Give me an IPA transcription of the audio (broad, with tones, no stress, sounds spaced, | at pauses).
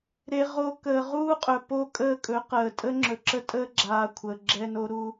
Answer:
ɾ e˦ ʁ o˦ k əː˨ ʁ uː˦ qʼ ɵ˨ p o˦ kʼ əː˦ kʼ ɵ˨˦ q əː˨ tʼ ə˦ ŋ͡ǁ ɵ˨ ǁ ə˦ tʼ əː˦ ɡ͡ǁ aː˨ kʷʰ əː˨ ɡ͡ǁ ɛ˦ n o˦ ɾ u˦